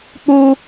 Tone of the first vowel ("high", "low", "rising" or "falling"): high